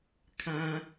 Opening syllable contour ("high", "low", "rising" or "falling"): high